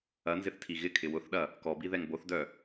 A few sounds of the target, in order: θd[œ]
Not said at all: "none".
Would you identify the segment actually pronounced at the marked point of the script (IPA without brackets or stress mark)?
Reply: œ